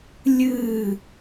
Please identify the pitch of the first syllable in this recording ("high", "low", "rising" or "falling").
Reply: falling